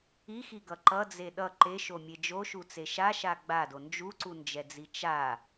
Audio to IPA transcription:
i x i ɡ ʌ ǃ ʌ d͡z e ɗ ʌ ǃ e ʃ o mʲ e d͡ʒ o ʃ u t͡s e ʃ a ʃ a ɡ͡b a d o n d͡ʒ u ǀ u n d͡ʒ ɛ d͡z i t͡ʃ a

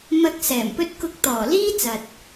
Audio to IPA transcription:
m ɐ˧ k̚ s ɛː˨˩ m p ɵ˥ t̚ k ʊ˧ k̚ t̪ ɔː˨˩ l iː˥ t͡s ɐ˨ t̚

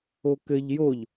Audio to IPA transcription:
o k ɘ ʎ j o ʎ

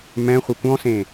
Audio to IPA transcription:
m ɛ̃ χʷ e kʷ ɔ̃ s ẽ

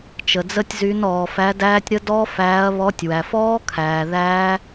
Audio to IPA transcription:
t͡ʃ ə˩ d͡z ə˦˥ tʲ z y˨˥ n ɔː˩ f æ˨˥ d æː˦˥ tʲ ɾ ə˦˥ d ɔ˦˥ f æː˨˥ ɐ̯ β ɔ˨˥ tʲ w æ˩ f ɔː˦˥ kʰ æː˩ ð æː˦˥

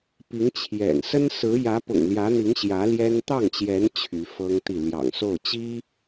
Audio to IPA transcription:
p i˧˥ ŋ t͡ɕʰ j ɛ̰˨˩ n s ə˥ n s ɹ̩˧˥ j ä˧˥ p ʊ̰˨˩ ŋ l j ä˧˥ n̪ i˧˥ ŋ ɕ j ä˧˥ l j ɛ˥ n t̪ ɑ˥˩ ŋ t͡ɕ j ɛ˧˥ n t͡ɕʰ y˧˥ f ɤ˥ ŋ t̪ i˥˩ l j ɑ̰˨˩ ŋ s o˥˩ ʊ̯ t͡ɕ i˥

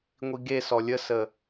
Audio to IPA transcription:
ŋʷ i ɡ e s ɔ lʲ ə s ə

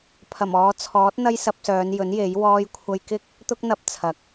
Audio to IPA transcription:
pʰ ɐ˨˩ m ɔː˨˧ t͡sʰ ɔː˨˥ t̚ n̪ ɐ˥ j s ɐ˧ p̚ s œː˨˧ n j ɵ˨˥ n j e˨˥ j w ɔː˧ j kʷʰ ɐ˧ j k ɪ˥ k̚ | t̪ ʊ˥ k̚ n̪ ɐ˧ p̚ t͡sʰ ɐ˨˥ k̚

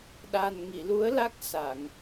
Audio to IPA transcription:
ɗ a˨˩ n ŋ i˨˩˨ l u˧˥ ə̯ l a˦˥ k̚ s a˨˩˨ ŋ

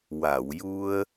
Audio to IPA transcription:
w a˨˩˨ w j u˧ ə̯

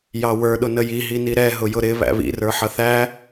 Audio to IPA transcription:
j ɑ w ə˞ ɗ ʊ n ə j i ɦ i n i ɾ ɛ ɦ ʊ j ʊ ɾ ɪ β æ̰ β ḭ r ə˞ ħ ʌ θ æ

